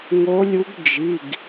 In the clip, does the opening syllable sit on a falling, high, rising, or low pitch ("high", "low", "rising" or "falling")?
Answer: rising